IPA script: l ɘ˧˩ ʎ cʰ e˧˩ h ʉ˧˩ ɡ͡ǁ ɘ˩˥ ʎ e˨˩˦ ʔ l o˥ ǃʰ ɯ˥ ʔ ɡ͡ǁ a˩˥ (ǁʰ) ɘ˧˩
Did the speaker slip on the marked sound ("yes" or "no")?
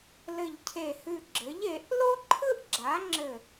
yes